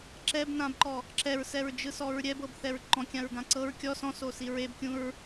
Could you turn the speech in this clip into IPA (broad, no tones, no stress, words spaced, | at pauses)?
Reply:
ǁɛbnãbǃɔ | ǁɛɹsɛɹd͡ʒɯsɔɹ ɾʲɛbɤbθɛɹ ǃɔ̃kʲãɹɡã ǀɤɹ kʲɔ sɔ̃sosi ɹebkʲũɹ